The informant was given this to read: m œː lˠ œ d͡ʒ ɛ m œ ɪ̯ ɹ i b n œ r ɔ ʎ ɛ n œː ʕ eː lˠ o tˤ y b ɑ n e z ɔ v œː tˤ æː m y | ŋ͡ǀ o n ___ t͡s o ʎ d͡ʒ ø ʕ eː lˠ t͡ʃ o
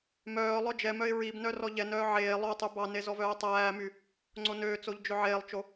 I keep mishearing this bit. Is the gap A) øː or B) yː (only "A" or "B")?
A